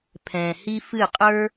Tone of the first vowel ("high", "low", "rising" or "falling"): low